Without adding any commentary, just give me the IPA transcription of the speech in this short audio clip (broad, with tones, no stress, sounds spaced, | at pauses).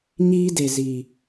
ɲ iː˦ d e˨ z i˨